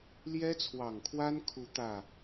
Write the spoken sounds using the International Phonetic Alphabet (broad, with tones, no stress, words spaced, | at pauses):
ljɛ˥t͡sʰwɑ˨˩ŋkʰwa˥nkʰu˧˥ t̪ä˥˩